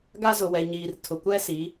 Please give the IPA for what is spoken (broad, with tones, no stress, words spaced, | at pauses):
ɡa˦zʊ˨wɛ˨ɲiː˨r tʰʊ˨kʷɛ˦si˨˦